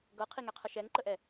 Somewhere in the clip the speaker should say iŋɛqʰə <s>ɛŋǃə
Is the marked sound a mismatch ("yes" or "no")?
yes